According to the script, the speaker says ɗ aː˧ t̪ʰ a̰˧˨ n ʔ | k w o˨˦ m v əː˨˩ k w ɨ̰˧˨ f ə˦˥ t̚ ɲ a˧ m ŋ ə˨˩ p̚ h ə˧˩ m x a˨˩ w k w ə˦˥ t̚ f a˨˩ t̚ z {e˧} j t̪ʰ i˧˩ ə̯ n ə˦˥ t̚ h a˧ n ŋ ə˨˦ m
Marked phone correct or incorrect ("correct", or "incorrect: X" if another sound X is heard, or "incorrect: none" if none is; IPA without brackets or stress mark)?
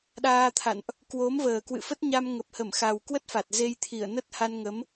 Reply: correct